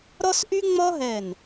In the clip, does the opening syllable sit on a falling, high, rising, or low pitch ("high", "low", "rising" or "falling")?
high